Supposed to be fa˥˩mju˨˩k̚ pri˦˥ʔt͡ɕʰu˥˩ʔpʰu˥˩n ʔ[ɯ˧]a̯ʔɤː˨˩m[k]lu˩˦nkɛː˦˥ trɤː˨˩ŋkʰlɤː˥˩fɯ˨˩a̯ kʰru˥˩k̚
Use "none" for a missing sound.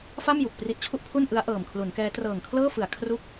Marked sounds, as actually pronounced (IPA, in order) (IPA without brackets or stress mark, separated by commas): ɯ˦˥, kʰ